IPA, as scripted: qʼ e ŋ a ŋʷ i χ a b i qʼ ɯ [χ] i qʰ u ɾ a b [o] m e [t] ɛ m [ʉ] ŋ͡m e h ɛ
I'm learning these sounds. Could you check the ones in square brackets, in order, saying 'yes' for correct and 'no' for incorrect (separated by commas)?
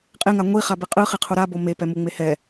yes, yes, no, no